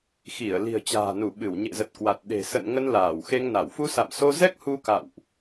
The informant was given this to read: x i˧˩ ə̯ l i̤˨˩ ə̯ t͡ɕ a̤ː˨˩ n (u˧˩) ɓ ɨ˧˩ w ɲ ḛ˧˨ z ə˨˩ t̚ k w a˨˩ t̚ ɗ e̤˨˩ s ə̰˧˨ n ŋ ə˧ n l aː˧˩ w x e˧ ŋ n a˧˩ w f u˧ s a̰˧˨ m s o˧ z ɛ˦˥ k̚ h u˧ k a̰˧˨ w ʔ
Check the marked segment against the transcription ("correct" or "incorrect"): correct